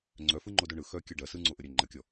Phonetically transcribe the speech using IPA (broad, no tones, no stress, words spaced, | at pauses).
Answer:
ŋ͡ǀœfɯ ŋ͡ǃodoɳɯ xœ kʲœɖɐ sɯŋ͡ǀoʔəɾʲœ ŋ͡ǃɐkʲɔ